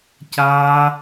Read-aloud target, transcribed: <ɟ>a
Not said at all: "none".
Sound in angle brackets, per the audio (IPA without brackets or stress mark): c